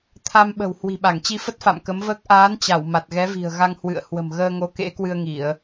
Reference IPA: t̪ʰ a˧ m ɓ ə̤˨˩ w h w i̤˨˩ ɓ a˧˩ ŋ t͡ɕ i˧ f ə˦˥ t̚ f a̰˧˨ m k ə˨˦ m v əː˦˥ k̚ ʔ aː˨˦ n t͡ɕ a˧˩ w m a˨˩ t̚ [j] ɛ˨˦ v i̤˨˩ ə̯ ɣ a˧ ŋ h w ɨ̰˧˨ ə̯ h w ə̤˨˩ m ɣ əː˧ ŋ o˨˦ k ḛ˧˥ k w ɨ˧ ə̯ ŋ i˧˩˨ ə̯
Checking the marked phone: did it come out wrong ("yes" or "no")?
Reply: yes